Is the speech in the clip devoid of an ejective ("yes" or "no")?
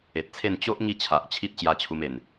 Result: yes